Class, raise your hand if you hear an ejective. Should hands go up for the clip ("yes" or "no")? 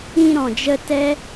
no